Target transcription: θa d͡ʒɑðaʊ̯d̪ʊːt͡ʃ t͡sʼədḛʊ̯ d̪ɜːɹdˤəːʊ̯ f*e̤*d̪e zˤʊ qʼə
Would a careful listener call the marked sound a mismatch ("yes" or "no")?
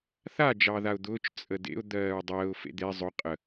yes